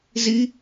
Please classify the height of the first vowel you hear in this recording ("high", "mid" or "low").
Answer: high